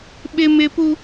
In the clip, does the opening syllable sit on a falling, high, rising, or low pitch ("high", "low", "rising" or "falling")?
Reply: high